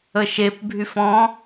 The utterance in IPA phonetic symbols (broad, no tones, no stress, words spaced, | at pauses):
əʃep bʱyfɔ̃